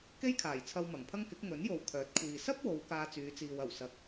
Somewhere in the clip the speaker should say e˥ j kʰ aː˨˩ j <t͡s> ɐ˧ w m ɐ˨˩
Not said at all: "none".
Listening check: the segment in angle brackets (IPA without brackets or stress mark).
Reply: t͡sʰ